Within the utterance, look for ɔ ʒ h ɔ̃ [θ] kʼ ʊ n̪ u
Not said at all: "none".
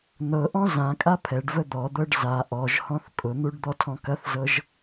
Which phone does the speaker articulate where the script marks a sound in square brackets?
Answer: θ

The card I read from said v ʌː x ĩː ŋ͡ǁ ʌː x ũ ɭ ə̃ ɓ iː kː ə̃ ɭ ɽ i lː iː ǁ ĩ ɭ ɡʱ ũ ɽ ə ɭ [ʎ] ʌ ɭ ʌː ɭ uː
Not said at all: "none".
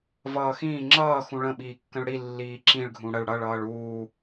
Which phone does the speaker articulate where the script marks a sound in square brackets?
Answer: ɽ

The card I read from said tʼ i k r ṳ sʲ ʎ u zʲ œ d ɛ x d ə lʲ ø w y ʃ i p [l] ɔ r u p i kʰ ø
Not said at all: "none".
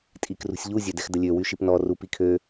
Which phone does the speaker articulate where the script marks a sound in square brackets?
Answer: n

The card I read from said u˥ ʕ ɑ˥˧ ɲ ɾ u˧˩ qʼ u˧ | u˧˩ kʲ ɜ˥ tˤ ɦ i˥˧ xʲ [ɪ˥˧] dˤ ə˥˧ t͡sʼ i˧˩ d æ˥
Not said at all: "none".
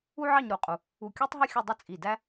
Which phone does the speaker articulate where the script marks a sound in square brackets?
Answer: ə˥˧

